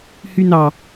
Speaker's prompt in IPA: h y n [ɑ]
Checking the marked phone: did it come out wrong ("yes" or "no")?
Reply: no